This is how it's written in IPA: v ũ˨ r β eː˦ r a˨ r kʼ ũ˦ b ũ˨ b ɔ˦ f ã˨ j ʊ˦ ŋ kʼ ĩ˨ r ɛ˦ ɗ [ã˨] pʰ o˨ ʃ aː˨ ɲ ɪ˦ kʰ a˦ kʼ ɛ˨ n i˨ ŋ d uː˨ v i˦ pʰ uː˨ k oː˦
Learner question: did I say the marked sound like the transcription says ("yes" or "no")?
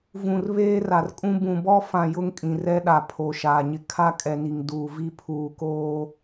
no